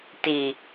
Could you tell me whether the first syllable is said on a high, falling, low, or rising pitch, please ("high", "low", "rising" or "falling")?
low